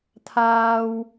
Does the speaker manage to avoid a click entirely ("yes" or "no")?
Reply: yes